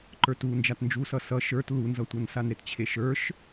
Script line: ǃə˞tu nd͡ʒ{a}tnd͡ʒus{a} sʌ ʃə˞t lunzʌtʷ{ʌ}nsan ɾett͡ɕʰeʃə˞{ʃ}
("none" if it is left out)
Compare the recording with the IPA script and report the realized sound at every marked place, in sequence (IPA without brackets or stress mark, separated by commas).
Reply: a, ʌ, ʌ, ʃ